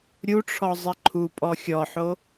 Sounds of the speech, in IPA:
ɾʲ u ʈ͡ʂʰ ɔ zˤ i ǃʰ u pʼ ɔ xʲ ɔ ħ o

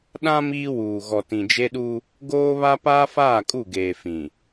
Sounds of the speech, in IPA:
ɗ ã˦ m iː˦ w uː˨ ɣ ɔ˨ t ĩ˨ d͡ʒ e˦ ɗ u˦ | ɡ oː˦ β a˦ p aː˦ f aː˦˨ kʼ u˦˨ ɡ eː˨ f ĩ˨

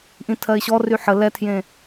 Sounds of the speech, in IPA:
ʔ ĩ tʰ ɜ ɪ̯ ɕ ɔ r y ħ ə l ɛ tʰ j ẽ

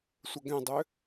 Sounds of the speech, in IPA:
sʷ ə ɡ ɛ̃ dˤ ʏ

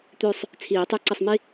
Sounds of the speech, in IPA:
t̪ ø˦˨ sˤ | t͡sʰ iː˨˩˦ tˤ ø˦˨ ǀ ə˦˨ sˤ m i˥

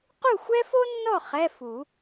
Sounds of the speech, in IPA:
q u˥˨ xʷ ɛ˥ f o˥ nː ɔ˥˨ χ ɛ˧˥˧ f u˨˩˦

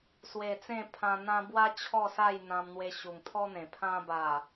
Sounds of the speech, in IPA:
s w e˨˩ t͡s ẽ˥˧ pʰ ã˧ n̪ ã˦ b w a˦ t͡ɕʰ ɔ˥˧ s a˥˧ j n̪ ã˧ m n̪ w e˧ ɕ u˨˩ ŋ t̪ʰ ɔ˦ n̪ ẽ˨˩ pʰ ã˧ b a˨˩

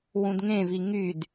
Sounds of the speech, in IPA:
w ũ d ŋ ẽ v i ŋ y d

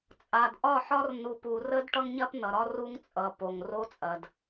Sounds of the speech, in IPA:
t͡sʼ a˨ d ʔ ɒ˦˨ ħ ɒ˦ r n u˨ p u˨ r ə˦ d ʈ ʌ˦ ŋ ɲ ɐ˦ p n ʌ˨ ɾ ɒ˦ r u˦ ŋ t͡sʼ ʌ˨ p o˨ ŋ r o˦ t͡sʼ ɐ˨ d

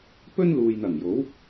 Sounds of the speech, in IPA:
p ɵ˥ n l uː˨ j n̪ ɐ˨˩ ŋ j o˨˥ w

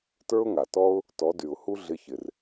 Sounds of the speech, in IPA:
t ə˞˦ ʊ̯ ŋ a˨ t ɔ˦ ʊ̯ | t ɔ˨˦ d y˨ ʊ̯ h u˦ ɮ ɪ˧ ç ɪ˨ r

